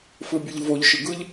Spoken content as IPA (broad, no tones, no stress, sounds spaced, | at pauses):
f ɯ bʲ ɯ ʎ v o ʎ ʃ ɯ ɡ ɯ ʎ